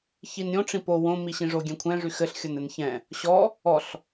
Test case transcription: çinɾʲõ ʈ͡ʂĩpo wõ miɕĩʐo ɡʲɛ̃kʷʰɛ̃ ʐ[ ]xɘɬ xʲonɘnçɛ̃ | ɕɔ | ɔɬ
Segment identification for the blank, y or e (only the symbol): y